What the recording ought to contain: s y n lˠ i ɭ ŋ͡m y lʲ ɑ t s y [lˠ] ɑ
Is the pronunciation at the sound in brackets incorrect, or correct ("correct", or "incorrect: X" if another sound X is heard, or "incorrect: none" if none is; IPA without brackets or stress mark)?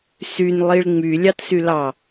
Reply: incorrect: l